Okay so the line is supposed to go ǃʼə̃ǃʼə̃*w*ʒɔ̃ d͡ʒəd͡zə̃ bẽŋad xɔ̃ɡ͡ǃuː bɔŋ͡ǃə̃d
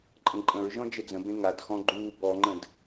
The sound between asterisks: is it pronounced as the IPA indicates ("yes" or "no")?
no